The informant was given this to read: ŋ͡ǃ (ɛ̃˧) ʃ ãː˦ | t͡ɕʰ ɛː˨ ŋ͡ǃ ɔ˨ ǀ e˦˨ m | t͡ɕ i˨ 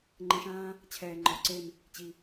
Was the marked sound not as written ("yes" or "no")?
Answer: no